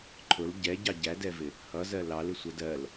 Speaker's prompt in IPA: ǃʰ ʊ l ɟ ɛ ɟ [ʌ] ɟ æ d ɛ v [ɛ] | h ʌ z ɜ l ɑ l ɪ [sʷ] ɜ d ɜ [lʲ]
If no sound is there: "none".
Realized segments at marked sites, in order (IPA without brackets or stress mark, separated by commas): ɑ, ɪ, sʷ, l